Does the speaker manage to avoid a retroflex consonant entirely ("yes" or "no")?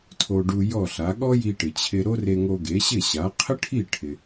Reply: no